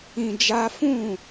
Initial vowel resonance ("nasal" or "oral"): nasal